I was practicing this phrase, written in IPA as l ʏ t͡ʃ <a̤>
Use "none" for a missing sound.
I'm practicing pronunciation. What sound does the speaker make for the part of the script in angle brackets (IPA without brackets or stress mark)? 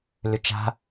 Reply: a̤